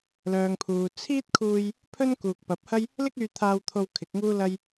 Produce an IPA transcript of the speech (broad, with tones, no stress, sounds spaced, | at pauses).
l œː˨ ŋ pʰ uː˨ t͡sʰ iː˥ t̚ kʰ uː˧ j | pʰ ɵ˥ n k uː˨ k̚ p ɐ˨˥ p̚ h ɐ˥ j | l ɪ˥ k̚ yː˧ t̪ʰ aː˧ w t̪ʰ o˧ w kʰ ɪ˨˥ k̚ ŋ uː˥ l ɐ˥ j